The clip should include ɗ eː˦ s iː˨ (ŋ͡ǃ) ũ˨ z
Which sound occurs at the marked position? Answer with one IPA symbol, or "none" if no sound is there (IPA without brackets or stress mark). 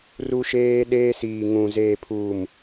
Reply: ŋ